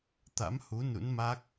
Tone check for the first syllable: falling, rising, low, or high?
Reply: rising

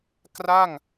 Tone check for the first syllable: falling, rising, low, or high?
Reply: falling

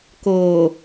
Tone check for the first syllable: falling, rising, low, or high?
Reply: low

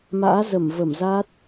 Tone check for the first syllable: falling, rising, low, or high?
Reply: rising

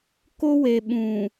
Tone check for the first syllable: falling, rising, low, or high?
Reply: high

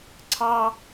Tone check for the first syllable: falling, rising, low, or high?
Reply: high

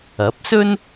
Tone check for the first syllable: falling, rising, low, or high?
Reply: rising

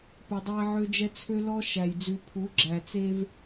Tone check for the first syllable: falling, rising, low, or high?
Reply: low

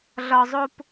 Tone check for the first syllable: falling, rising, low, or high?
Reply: low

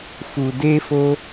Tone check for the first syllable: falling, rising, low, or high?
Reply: low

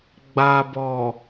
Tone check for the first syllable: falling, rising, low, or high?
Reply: low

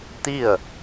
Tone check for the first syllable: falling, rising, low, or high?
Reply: falling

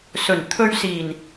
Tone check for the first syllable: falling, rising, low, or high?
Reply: low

